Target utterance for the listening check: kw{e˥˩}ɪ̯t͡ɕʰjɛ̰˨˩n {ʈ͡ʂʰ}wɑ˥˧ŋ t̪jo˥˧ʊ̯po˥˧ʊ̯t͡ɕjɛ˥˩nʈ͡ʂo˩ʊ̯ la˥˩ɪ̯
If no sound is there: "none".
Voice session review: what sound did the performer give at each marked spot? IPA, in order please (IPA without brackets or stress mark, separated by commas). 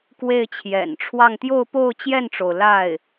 e˥˩, ʈ͡ʂʰ